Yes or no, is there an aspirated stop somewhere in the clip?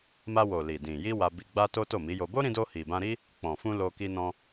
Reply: no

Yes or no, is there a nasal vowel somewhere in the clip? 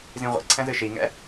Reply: yes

